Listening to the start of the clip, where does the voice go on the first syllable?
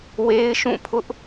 high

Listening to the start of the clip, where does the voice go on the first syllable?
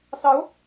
rising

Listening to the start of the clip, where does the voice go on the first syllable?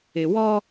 low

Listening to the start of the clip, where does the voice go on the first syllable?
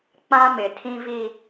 high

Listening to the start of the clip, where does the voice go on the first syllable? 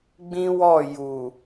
high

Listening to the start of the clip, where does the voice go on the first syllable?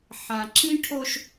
low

